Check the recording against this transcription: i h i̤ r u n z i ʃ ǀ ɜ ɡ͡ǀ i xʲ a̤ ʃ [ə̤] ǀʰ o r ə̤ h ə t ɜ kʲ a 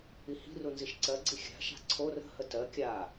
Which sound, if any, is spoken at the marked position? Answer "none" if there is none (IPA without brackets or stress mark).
a̤